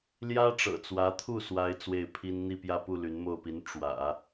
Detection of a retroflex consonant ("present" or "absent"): present